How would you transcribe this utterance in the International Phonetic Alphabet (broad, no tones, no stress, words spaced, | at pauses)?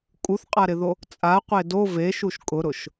kʼuθqʼaɾɪðo | t͡sʼaqʷe do veʃuʃ kʼʊɾʊʃ